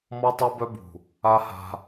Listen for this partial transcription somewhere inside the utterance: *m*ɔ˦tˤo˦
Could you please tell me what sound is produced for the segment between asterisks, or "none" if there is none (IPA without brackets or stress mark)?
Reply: m